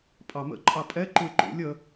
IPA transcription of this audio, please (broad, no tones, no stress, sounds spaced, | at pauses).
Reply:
pʼ ɑ m ə̰ ǃʼ ɑ pʼ ɛ ǃ u e̯ ǃ ṵ lʲ ə